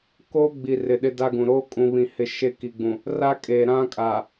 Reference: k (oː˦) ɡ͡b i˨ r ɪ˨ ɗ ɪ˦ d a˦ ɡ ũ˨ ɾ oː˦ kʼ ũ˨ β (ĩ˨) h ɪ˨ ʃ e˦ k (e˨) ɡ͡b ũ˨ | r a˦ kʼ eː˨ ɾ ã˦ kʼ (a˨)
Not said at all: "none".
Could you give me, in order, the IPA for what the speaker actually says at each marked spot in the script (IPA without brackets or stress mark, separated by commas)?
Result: oː˦, ĩ˨, i˨, a˨